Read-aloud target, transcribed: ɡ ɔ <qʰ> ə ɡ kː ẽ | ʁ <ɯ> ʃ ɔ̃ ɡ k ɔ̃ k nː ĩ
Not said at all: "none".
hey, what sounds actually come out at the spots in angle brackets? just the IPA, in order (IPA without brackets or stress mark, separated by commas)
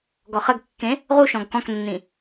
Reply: χ, u